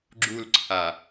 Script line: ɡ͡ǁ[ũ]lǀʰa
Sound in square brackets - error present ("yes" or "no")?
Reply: yes